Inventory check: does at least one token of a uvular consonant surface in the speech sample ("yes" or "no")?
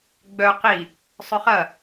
yes